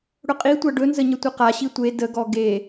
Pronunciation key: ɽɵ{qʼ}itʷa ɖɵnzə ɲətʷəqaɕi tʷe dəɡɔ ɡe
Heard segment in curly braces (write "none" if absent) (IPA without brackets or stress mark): qʼ